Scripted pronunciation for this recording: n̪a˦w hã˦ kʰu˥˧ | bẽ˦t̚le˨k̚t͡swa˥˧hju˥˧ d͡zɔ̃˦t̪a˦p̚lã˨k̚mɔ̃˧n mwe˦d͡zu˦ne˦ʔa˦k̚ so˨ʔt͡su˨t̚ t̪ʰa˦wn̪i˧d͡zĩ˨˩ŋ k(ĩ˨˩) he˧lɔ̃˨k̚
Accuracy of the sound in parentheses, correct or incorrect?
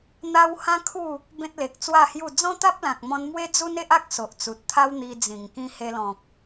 incorrect